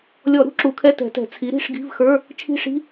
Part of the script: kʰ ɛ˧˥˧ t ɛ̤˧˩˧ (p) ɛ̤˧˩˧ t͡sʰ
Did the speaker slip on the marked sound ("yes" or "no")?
yes